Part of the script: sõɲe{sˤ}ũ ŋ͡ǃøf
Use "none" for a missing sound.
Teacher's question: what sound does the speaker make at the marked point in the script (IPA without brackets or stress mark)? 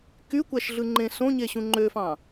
ɕ